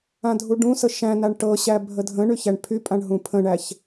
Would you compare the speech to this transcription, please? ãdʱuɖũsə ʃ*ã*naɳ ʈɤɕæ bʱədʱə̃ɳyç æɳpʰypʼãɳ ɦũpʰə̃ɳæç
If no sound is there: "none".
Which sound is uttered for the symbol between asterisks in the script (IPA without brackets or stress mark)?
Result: æ̃